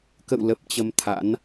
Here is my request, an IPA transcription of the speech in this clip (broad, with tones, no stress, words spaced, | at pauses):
kə̰˧˨wlə˨˩p̚ t͡ɕə˧mt̪ʰa̰˧˥n